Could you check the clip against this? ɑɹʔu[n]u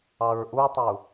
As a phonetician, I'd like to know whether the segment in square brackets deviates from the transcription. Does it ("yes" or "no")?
yes